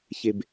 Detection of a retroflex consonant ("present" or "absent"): absent